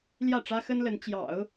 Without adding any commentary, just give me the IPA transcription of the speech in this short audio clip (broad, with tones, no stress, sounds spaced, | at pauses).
l j ä˥˩ ʈ͡ʂ ä˥ x ə˥ n l ə˧˥ n t͡ɕ j ɑ̰˨˩˦ ʊ̯